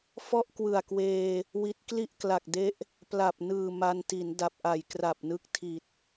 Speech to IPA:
fɔ˥˩ʔkwɯ˨˩a̯kweː˧ | wi˦˥t̚ kli˥˩ʔkla˨˩k̚de˦˥ʔ | pla˨˩p̚nɯː˨˩ ma˧n ti˩˦nda˨˩p̚ʔa˨˩j kra˨˩p̚nɯ˦˥k̚ tʰi˨˩t̚

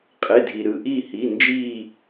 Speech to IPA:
qʼe˩˧˩dʱi˩ɾɯ˩ ʔi˦˨hi˩˧˩ nd͡ʒiː˦˨

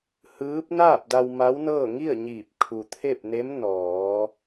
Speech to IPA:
hɯː˧˥p̚ naː˥˨p̚da˧w ma˧˥wnɤː˥˨ ŋi˥˨ə̯ɲiː˧˩p̚ kʰu˩t̪ʰe˥˨p̚ne˧˥m nɔː˩˧

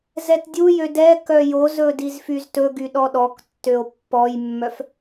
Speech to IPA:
zɛtdʲujø dɛ kœjozɵ dizfyztɵɡy ɗɔɗɔktːøo̯ pːɔjmːœf

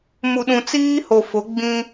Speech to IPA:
mu˨ɗũ˨t͡siː˦ho˨ fʊ˨˦ ɡ͡bĩ˦

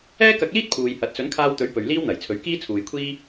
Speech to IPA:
ɛː˥kɐ˧k̚liː˥t̚ pʰuː˨jhɐ˨˥t̚ sɵ˨˥nkʰaː˧wt̪ɵ˨˥ɥ pɵ˨ɥliː˥wn̪ɐ˨˩jt͡sʰɵ˨˥ɥ kiː˥t͡sʰuː˨jkʷʰiː˥

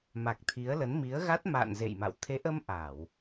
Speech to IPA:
ma˨˩k̚t̪ʰi˨˦ə̯lə˨˦n mi˨˦ə̯ɣa˦˥t̚ma̰ː˧˨n zḛ˧˨jma̰˧˨w t̪ʰe˨˦ʔə˧m ʔa˧˩˨w

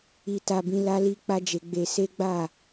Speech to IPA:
i˦ta˦bĩ˦ la˦li˦k͡pa˦d͡ʒe˧ ɡ͡be˧se˦ɡ͡ba˦˨

